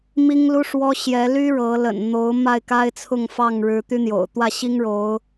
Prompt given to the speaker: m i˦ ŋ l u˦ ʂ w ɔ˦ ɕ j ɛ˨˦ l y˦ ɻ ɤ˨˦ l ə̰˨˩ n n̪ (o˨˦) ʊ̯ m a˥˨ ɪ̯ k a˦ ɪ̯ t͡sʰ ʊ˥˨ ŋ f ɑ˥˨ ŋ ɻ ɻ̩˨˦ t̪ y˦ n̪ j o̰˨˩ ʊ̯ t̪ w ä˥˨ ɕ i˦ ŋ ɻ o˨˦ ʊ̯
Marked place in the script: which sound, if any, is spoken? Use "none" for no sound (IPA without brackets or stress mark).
o˨˦